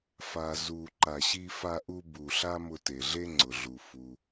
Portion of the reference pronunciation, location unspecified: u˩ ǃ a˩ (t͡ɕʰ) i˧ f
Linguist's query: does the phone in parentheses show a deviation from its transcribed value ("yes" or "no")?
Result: yes